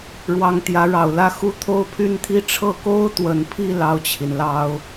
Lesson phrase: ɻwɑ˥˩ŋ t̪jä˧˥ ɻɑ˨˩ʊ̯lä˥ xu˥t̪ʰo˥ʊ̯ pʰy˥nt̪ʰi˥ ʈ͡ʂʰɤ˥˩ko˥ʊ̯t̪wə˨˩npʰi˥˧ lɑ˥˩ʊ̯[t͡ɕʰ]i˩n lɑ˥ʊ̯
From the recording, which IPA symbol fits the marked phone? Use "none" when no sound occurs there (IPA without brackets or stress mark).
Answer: t͡ɕʰ